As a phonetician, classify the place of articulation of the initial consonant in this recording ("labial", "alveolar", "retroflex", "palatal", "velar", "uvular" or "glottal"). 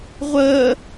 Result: uvular